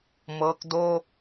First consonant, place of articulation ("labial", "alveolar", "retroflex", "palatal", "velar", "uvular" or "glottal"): labial